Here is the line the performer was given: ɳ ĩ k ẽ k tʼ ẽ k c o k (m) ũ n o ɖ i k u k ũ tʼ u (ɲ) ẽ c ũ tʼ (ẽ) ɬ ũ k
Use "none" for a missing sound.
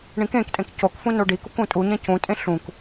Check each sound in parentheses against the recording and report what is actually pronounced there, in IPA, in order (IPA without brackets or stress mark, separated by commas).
f, ɲ, ẽ